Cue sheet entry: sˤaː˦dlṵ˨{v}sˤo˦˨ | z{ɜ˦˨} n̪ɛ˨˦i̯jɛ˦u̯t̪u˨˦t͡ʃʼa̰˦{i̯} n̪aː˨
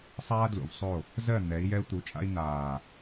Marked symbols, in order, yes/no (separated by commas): yes, yes, yes